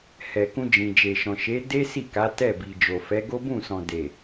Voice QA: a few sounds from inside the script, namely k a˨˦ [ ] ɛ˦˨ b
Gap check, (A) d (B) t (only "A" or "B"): B